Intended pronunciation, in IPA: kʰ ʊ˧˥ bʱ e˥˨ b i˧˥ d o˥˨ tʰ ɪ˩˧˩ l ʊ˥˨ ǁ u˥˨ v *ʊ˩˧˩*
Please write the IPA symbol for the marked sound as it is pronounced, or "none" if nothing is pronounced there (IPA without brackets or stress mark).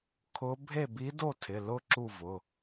ʊ˩˧˩